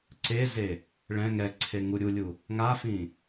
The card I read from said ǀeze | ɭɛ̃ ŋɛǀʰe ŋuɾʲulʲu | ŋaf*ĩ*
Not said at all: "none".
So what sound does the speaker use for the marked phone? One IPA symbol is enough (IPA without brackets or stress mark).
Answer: ĩ